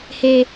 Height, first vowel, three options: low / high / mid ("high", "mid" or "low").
mid